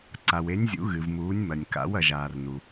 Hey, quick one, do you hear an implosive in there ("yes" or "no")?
no